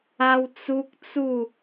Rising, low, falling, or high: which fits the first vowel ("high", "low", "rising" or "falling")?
high